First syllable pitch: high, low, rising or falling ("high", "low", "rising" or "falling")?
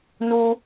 high